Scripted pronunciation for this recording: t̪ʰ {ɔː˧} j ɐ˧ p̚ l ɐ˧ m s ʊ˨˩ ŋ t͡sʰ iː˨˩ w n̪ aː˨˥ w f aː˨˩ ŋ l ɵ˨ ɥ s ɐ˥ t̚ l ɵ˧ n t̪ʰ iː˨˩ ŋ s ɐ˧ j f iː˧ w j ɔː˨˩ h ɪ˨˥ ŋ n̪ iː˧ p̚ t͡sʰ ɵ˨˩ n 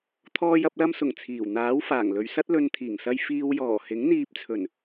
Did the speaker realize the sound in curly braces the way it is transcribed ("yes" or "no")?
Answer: yes